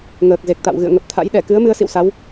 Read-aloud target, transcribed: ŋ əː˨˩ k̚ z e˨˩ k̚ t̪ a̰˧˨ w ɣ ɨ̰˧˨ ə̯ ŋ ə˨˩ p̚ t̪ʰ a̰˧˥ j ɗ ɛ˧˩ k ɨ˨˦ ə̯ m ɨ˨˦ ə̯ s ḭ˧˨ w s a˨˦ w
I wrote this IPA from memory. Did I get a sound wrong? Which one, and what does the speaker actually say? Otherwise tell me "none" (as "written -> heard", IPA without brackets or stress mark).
none